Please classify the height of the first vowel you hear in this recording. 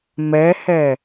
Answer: mid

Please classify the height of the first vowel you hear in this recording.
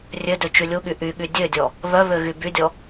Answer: mid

